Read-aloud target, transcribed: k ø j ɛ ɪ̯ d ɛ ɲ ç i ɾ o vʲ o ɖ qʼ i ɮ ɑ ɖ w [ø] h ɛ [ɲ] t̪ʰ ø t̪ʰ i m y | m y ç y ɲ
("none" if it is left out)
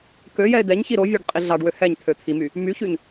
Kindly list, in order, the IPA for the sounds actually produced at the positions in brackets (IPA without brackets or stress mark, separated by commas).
ø, ɲ